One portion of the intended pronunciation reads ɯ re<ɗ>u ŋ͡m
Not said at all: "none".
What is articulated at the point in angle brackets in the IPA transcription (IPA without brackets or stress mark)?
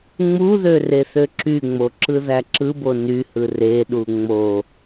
ɗ